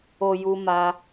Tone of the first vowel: low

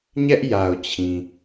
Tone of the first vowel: high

